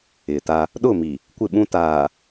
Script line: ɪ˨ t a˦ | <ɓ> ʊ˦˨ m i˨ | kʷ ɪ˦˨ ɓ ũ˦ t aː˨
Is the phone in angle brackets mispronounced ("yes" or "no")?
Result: yes